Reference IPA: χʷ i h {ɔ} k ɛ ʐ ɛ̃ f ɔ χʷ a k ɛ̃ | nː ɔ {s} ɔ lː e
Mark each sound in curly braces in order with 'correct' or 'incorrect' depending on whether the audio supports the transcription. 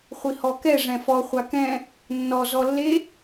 correct, incorrect: z

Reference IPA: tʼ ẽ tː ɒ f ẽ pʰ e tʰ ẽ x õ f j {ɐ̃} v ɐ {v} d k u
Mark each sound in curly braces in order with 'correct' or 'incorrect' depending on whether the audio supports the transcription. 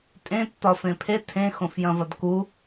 correct, incorrect: none

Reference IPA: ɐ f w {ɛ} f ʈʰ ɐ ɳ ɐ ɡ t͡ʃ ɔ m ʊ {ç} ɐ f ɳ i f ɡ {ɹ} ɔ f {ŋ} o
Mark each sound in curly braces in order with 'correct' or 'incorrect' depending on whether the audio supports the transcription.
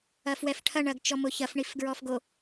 correct, correct, correct, incorrect: ɡ

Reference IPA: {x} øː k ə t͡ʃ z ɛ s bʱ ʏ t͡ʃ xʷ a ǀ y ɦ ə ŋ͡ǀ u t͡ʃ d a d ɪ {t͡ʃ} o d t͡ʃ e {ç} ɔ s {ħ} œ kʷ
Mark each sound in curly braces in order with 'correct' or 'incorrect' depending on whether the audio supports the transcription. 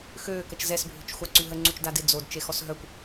correct, incorrect: d͡z, incorrect: x, incorrect: ɦ

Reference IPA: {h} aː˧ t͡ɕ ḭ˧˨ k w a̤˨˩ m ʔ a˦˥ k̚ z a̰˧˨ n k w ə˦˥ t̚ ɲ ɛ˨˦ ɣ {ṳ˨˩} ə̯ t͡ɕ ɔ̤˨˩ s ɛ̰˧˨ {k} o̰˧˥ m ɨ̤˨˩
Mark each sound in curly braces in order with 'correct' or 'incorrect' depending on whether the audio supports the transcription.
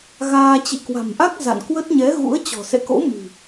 incorrect: ɣ, incorrect: ṵ˧˥, correct

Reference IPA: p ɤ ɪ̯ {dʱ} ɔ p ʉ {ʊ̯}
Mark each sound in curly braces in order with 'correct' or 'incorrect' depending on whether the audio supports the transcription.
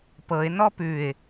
incorrect: n, incorrect: ɪ̯

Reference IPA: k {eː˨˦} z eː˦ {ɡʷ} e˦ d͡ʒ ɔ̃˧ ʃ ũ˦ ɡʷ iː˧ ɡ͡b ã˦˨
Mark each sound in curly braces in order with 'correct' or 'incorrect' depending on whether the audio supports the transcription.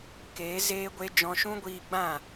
correct, correct

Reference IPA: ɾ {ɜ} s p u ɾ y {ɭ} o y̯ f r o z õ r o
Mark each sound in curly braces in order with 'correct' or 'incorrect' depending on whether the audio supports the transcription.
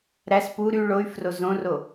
incorrect: æ, correct

